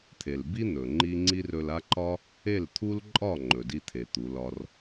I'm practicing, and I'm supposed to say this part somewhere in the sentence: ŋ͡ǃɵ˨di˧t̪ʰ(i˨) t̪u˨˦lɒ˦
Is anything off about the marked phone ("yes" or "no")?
yes